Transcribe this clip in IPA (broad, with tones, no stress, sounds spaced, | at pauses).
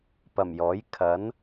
p ɐ˨˩ m j ɔː˨˥ j kʰ ɐ˨˥ n